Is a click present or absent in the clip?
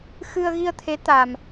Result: absent